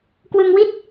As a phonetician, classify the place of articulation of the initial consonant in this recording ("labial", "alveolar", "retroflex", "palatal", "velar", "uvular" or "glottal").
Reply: velar